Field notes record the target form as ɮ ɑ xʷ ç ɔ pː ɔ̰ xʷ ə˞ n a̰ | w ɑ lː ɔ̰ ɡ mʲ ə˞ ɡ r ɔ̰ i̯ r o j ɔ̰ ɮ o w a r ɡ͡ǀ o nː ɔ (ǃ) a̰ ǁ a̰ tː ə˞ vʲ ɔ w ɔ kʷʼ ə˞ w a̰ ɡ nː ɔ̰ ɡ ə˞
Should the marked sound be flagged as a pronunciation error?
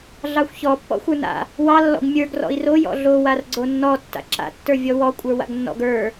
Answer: yes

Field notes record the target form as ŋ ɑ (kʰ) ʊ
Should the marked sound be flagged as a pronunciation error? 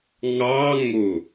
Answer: yes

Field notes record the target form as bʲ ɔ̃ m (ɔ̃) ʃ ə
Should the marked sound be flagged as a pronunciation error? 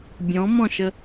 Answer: no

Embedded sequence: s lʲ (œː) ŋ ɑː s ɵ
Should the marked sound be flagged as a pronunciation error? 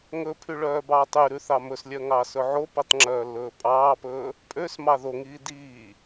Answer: yes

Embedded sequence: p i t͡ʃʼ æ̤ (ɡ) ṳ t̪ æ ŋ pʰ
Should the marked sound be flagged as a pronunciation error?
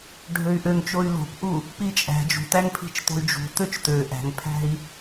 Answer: yes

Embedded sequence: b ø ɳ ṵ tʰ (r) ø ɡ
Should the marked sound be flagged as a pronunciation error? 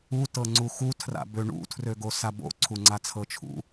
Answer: no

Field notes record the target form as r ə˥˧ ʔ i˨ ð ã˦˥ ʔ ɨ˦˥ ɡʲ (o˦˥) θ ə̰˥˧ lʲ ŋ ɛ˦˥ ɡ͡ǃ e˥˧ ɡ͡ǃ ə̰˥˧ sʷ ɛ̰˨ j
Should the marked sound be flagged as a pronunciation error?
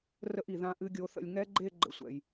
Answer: no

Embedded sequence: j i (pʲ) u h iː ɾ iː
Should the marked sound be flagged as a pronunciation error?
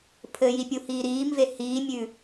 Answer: no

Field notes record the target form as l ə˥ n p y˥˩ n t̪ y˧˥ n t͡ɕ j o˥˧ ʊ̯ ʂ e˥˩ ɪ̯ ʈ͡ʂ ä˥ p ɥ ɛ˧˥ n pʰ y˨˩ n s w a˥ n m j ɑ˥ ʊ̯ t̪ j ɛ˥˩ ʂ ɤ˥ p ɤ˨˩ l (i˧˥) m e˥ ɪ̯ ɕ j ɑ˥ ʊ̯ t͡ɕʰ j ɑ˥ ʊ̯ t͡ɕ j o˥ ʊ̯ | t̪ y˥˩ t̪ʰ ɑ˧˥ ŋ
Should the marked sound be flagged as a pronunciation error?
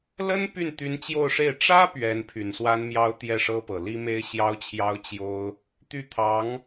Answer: yes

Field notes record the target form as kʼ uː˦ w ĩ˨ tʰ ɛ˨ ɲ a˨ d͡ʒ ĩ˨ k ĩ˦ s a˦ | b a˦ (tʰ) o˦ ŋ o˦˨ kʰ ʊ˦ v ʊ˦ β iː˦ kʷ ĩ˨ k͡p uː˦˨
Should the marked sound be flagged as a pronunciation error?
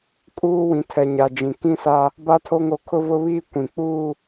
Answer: no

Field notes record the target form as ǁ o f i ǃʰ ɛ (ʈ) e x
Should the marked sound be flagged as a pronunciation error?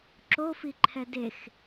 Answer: yes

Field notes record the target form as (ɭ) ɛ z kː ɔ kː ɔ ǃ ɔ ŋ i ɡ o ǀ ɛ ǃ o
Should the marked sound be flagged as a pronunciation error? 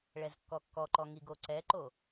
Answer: no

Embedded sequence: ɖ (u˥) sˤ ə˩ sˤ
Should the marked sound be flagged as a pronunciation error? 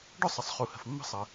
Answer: yes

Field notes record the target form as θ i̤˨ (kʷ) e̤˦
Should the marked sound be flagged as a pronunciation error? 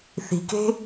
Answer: yes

